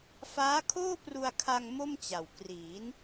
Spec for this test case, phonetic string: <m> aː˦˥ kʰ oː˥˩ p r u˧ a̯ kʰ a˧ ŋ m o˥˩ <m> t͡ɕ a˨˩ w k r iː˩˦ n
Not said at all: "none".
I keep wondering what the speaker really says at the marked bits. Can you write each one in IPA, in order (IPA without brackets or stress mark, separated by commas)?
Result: f, m